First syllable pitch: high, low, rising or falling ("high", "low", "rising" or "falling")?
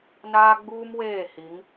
high